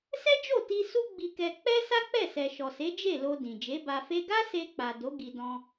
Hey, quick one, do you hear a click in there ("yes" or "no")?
no